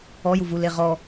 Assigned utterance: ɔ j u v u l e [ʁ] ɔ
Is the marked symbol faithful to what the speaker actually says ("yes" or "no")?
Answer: yes